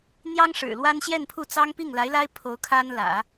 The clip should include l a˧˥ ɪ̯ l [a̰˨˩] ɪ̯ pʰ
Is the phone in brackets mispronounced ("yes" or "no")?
yes